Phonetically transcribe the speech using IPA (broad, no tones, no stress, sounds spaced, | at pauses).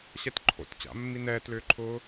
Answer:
ɕ ɛ t ǃʰ o̰ t t͡ɕ a̰ mː i n ɛː t l ʏː ǃʰ ʊː